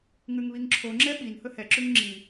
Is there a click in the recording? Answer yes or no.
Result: yes